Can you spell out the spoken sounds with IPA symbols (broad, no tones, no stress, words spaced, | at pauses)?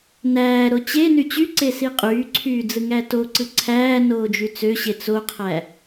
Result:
næːɾo t͡ɕeny t͡ɕyǀe siqʼyːǀʰyː d͡zɯŋætoǀɯ ǀʰæː noːd͡ʒyt͡søɕe t͡soqʰæ